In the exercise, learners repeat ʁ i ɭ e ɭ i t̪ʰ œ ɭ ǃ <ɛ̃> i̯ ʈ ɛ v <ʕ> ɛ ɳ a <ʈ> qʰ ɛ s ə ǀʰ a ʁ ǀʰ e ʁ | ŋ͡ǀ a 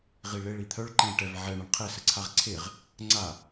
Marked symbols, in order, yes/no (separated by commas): yes, yes, no